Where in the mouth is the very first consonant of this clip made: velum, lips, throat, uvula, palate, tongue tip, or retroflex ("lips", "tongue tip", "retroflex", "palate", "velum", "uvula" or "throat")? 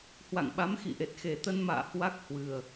throat